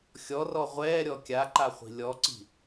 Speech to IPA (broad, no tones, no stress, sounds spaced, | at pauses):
xʲ ɔ r ɔ ʁʷ ɛː ɾʲ ɔ kʲ a ǃ a χʷ i̤ lʲ ɔ ǀ i̤